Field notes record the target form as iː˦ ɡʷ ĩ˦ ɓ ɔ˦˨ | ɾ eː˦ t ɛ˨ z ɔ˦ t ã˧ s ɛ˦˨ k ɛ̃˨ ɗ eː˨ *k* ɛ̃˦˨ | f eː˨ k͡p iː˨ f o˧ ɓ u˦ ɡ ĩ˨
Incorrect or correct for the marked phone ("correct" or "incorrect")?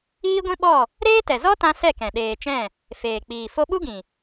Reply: incorrect